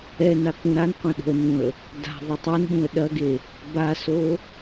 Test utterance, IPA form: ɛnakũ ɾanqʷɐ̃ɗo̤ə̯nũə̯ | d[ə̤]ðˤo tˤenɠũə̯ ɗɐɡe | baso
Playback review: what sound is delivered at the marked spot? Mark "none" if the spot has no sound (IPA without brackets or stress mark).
a̤